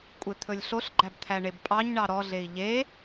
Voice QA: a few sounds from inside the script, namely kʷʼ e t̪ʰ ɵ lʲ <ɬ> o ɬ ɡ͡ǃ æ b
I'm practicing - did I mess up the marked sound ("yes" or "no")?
no